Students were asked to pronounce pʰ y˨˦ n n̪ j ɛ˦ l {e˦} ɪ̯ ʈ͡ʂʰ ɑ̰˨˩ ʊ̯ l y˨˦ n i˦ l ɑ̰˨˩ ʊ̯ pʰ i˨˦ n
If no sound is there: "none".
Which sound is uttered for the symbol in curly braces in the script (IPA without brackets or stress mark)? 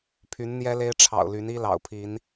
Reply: e˦